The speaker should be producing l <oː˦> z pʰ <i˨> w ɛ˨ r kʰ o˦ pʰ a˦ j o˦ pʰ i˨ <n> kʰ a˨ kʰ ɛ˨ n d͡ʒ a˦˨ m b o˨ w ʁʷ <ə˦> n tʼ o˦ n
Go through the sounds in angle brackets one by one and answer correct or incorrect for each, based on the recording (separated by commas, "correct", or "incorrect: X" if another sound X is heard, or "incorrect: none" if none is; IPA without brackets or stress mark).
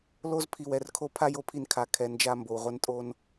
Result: incorrect: o˦, correct, correct, incorrect: ɛ˦